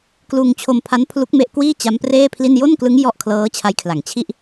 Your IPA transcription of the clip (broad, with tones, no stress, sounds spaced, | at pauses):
k l uː˧ ŋ t͡ɕʰ o˧ m pʰ a˦˥ n pʰ l u˦˥ k̚ m e˦˥ ʔ k w iː˥˩ t͡ɕ a˦˥ m p r eː˥˩ pʰ l i˥˩ n j o˥˩ n k l ɯ˦˥ ŋ j ɔ˥˩ ʔ kʰ l ɤː˦˥ t͡ɕʰ a˦˥ j kʰ l a˨˩ ŋ t͡ɕʰ i˥˩ ʔ